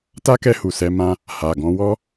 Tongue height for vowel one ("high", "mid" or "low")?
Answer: low